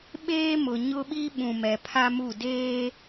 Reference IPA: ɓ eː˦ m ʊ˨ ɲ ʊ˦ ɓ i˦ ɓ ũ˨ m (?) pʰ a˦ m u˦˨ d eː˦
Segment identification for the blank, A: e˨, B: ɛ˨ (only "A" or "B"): B